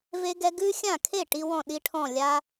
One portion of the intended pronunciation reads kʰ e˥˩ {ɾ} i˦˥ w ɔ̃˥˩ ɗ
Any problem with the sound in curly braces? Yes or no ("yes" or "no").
yes